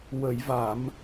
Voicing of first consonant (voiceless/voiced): voiced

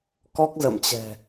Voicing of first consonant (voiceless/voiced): voiceless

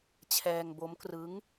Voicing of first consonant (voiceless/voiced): voiceless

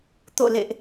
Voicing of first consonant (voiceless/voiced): voiceless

